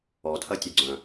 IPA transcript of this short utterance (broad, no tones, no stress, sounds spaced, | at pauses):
ɔ tʰ ɐ tʲ ø ɡ͡ǀ œ̃